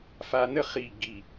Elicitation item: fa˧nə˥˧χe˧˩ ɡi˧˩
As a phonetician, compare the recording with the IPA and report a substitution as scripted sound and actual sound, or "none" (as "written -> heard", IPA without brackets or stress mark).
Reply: e˧˩ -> i˧˩